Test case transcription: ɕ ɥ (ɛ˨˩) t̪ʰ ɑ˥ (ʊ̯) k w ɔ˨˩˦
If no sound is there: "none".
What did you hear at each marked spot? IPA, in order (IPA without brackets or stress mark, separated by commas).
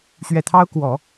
ɛ˨˩, ʊ̯